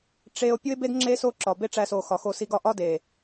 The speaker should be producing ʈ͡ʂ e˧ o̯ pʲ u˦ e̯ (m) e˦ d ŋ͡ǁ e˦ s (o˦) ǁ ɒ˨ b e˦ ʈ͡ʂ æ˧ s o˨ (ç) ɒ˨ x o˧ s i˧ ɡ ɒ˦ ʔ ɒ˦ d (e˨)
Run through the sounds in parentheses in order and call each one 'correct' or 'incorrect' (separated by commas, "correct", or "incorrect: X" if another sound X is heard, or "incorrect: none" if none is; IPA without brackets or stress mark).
incorrect: b, correct, incorrect: x, correct